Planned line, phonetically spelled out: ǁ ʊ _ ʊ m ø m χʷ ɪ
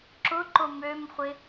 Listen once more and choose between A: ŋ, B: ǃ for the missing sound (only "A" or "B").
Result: B